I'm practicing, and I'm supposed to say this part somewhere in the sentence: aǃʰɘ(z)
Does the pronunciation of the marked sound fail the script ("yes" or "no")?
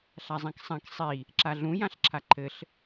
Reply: yes